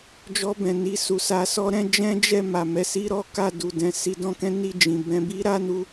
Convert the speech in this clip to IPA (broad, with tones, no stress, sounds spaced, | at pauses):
d͡ʒ ɔ˧ b ɛ̃˨ n i˧ s u˨ s a˧ s ɔ˦ ɾ ɛ̃˦ d͡ʒ ɛ̃˦ d͡ʒ ɛ˦˨ m a˨ m ɛ˧ s i˦ ɾ ɔ˦ k a˦˨ d u˨ d ɛ̃˧ s i˧ d ɔ̃˧ k ɛ̃˦ n i˦˨ d͡ʒ ĩ˨ b ɛ̃˧ b i˦ ɾ a˦ n u˧